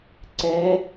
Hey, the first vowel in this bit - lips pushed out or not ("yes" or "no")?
no